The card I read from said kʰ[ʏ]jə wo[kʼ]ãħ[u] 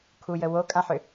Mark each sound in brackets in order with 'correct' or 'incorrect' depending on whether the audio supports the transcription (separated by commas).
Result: incorrect, correct, incorrect